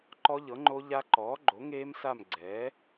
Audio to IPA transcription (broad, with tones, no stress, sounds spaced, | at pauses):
ǃ ɔ˦˥ ʎ ɤ˩˥ ŋ͡ǃ o˦˥ ʎ a˦˥ ǃ ɔː˩˥ ɡ͡ǃ o˩˥ ŋ eː˦˥ m s a˦˨ m ɡ͡ǀ ɛː˩˥